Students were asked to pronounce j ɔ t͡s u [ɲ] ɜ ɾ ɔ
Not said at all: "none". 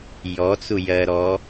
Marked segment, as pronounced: j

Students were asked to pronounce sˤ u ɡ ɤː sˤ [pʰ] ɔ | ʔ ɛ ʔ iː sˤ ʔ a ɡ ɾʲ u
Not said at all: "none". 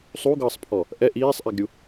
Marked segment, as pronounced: pʰ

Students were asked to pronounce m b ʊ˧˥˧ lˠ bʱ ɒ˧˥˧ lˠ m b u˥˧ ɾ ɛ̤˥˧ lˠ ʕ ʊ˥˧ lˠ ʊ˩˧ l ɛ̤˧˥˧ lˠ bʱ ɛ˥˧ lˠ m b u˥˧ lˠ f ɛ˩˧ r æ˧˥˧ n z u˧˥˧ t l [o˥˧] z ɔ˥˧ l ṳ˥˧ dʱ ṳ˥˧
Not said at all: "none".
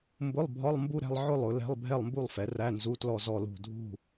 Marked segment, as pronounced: ɔ˥˧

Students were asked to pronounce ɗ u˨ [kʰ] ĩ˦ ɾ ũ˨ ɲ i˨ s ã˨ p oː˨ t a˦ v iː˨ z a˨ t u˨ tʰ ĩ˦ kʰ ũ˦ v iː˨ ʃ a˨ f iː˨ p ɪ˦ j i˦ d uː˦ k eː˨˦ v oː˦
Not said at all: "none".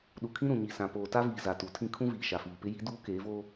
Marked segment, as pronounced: kʰ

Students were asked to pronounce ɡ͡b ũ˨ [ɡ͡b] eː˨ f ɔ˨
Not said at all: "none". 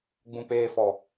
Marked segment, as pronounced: k͡p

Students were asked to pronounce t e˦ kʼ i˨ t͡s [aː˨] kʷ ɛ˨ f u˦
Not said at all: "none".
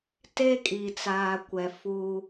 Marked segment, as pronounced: aː˨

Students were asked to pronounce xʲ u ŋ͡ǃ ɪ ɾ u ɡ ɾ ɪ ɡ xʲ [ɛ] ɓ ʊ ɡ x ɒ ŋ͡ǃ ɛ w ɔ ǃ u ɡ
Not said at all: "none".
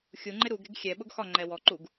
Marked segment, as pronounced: ɛ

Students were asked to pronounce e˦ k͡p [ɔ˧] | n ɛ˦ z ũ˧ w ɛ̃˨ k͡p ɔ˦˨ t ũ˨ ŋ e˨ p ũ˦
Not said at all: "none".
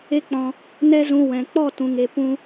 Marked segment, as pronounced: ɔ̃˧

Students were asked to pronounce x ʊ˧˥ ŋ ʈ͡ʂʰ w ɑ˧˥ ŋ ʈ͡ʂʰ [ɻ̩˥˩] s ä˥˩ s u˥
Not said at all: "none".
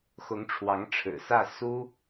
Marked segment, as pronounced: ɻ̩˨˩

